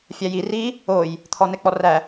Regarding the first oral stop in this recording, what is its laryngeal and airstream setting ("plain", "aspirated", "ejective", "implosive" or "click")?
aspirated